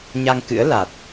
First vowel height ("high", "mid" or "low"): low